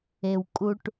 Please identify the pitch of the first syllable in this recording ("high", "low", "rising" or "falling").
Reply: low